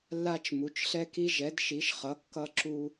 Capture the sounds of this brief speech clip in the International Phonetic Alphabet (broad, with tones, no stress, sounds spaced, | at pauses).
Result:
lː a˦ t͡ʃ m u˨˦ t͡ʃ ɬ ɛ˦ k i˦ ʒ ɛ˨˦ d ʃ i˨˦ ʃ χ ʌ˨˦ kː ʌ˦ ǁ u˦